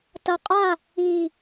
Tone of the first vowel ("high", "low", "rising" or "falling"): low